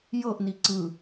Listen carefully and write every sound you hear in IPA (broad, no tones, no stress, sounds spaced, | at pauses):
j ɤ ʔ n i ǀ ɯ